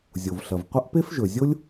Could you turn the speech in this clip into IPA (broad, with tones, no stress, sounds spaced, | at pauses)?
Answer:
zʲ o˩ v ɬ ɐ˩ v qʷ ɐ˥ ʔ p e˥ f ʒ ɵ˩ zʲ o˥ lʲ